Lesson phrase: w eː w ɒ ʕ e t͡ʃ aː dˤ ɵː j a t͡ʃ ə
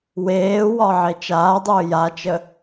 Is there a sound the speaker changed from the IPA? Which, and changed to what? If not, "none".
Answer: none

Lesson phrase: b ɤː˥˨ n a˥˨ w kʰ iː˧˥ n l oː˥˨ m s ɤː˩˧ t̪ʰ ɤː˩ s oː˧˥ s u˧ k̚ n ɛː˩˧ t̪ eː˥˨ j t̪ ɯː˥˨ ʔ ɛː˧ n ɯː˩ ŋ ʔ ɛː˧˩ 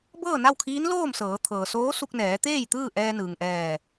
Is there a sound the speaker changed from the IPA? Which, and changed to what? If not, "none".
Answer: none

